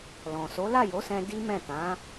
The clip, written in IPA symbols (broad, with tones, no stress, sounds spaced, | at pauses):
l ɔ̃˨ s o˨˦ l a˦˨ j o˨˦ s ɛ̃˦ d i˦ m ɛ̃˦˨ t ã˨˦